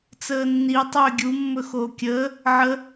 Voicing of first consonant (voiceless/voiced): voiceless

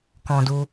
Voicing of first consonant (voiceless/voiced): voiceless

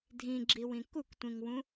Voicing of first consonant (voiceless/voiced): voiced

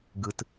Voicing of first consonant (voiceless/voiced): voiced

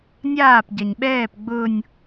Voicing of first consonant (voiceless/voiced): voiced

